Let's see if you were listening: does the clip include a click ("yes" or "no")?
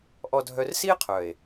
no